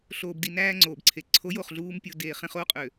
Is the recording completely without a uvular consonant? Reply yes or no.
no